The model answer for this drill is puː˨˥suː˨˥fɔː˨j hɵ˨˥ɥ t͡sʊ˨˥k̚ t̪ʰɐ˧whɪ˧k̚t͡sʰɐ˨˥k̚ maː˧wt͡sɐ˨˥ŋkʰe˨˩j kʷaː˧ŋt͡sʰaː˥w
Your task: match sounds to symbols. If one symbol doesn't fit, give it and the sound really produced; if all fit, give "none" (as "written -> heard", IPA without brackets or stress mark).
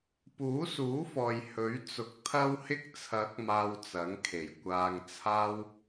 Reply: none